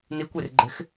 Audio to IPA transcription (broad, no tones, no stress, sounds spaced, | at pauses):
n i kʷ i r ɡ͡ǃ e̤ x